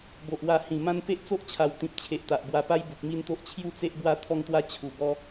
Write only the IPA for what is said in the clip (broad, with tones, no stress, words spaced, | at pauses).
bo˨ʔwa˧ hĩ˨˩ mã˦npe˦ʔ t͡so˦ʔt͡ɕʰa˨˩wt̪ĩ˨p̚ t͡ɕʰe˨ʔ t̪a˨ʔbwa˧pa˦j bu˨k̚mi˦nt̪o˦ʔ t͡ɕʰju˥˧t͡se˦ʔbwa˦ t̪ʰɔ˥˧ŋt̪wa˦ t͡ɕʰu˨˩ bɔ˦